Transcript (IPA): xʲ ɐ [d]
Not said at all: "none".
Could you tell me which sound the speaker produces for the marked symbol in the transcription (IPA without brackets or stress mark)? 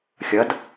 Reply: d